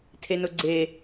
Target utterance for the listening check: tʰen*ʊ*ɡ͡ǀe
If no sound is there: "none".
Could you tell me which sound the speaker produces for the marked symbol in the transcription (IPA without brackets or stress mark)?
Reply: ʊ